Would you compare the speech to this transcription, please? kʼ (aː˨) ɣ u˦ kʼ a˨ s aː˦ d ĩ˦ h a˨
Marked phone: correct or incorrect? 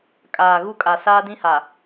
correct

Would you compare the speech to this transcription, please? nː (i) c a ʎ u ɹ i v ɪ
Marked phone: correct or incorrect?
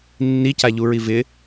correct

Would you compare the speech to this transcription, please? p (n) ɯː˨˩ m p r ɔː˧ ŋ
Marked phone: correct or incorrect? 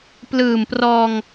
incorrect: l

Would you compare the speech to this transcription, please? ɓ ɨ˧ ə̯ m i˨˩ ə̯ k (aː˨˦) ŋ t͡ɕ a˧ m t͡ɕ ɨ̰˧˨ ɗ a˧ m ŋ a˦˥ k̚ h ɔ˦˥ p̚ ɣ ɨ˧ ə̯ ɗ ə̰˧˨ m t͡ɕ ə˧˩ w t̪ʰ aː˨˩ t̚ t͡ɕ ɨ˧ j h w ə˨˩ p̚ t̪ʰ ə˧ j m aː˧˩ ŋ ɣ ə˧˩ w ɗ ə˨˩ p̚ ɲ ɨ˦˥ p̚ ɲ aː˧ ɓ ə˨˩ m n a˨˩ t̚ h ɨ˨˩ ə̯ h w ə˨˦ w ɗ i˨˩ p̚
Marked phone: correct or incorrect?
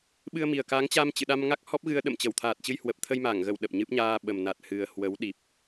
correct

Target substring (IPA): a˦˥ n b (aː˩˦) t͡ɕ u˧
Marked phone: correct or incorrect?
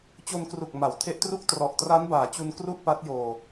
correct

